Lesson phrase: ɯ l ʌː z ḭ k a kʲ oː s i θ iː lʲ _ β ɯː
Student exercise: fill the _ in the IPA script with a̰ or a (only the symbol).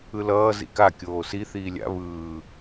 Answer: a̰